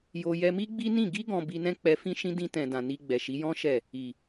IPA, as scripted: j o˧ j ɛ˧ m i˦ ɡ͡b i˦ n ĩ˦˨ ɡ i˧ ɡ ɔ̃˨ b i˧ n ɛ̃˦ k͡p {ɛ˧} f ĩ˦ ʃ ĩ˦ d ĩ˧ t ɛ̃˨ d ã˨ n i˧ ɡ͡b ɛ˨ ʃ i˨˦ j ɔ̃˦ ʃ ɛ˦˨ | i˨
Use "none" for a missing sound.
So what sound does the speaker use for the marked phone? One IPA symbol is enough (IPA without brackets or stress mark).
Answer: ɛ˧